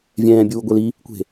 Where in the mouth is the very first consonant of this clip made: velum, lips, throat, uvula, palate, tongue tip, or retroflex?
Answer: lips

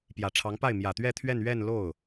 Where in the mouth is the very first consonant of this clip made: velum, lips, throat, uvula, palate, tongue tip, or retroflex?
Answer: lips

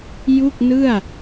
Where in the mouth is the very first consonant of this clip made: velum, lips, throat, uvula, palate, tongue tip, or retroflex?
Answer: palate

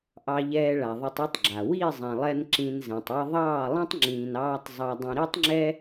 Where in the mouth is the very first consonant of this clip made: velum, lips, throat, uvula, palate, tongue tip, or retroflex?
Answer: throat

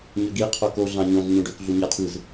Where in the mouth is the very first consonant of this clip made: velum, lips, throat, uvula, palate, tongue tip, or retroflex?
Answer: palate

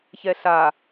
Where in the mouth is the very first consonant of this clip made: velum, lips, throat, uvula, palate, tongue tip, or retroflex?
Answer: palate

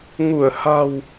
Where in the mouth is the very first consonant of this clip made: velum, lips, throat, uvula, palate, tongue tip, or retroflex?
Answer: velum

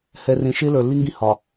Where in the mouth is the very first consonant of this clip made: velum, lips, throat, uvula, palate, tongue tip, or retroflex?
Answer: throat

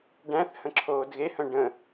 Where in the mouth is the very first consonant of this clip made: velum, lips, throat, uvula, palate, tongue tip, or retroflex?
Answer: retroflex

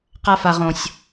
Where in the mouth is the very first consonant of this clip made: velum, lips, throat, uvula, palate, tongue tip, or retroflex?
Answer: uvula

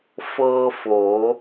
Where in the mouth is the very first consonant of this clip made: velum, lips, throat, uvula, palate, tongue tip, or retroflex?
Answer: lips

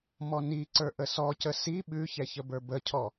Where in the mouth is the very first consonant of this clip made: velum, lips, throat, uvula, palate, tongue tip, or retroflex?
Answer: lips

